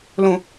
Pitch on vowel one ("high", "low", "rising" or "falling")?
low